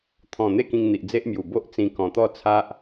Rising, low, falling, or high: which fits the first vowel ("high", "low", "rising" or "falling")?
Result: low